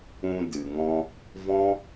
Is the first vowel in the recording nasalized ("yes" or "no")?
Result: yes